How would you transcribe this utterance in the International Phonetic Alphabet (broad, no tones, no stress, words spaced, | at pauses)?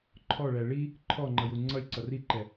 ǃʰɔɭæ ɭi | ǃʰɔŋ͡ǃʌju ŋ͡ǀʌlʲǀʌ riǃɛ